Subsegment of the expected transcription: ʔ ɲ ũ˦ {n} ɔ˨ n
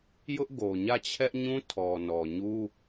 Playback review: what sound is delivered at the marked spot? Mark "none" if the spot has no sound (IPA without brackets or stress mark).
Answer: tʰ